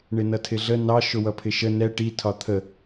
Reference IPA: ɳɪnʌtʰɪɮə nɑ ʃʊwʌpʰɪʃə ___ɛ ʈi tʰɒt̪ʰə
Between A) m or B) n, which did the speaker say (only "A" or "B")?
B